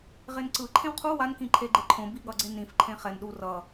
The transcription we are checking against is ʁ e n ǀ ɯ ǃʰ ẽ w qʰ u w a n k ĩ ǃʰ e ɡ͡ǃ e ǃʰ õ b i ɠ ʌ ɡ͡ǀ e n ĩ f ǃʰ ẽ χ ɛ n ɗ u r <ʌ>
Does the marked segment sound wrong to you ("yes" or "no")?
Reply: no